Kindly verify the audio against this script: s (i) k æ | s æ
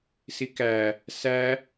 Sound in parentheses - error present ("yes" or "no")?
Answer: no